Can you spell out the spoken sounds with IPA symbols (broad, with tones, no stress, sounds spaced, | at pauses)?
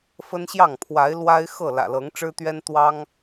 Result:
f ə˦ n ɕ j ɑ˥˨ ŋ pʰ w a˨˦ ɪ̯ l w a˦ ɪ̯ x ɤ˥˨ l ä̰˨˩ l ɤ˨˦ ŋ ʈ͡ʂ ɻ̩˦ t̪ ɥ ɛ˦ n t̪ w ɑ˦ ŋ